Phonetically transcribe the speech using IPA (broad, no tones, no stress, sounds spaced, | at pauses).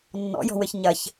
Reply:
nː ɔ̰ j ɔ̤ w ɘ ç ɲ ɐ ç